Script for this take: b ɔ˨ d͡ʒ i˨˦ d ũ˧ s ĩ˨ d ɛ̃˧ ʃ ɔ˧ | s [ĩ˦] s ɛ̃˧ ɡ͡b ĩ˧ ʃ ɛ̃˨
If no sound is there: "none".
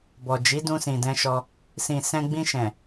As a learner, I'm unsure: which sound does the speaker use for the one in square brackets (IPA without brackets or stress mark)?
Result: ĩ˨